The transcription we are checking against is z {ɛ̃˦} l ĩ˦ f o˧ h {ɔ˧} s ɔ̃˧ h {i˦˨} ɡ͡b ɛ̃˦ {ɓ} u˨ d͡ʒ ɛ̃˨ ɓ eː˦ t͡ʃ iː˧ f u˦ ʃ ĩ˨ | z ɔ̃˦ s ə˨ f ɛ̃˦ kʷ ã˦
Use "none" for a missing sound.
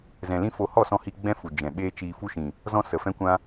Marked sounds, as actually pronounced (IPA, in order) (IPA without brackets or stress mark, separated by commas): ɛ̃˨, ɔ˦˨, i˧, f